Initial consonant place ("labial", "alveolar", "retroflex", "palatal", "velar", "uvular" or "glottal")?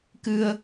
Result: velar